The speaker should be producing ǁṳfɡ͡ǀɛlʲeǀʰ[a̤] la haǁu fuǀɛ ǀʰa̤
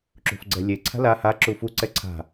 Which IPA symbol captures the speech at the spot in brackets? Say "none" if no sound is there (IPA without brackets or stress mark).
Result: a̤